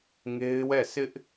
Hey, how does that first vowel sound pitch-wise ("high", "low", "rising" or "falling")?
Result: high